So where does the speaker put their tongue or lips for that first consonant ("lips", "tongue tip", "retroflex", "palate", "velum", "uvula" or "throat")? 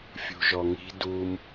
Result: lips